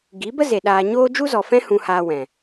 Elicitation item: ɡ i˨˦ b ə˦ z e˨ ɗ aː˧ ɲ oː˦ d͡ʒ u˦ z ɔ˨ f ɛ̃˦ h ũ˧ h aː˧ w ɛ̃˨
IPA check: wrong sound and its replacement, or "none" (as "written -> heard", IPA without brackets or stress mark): none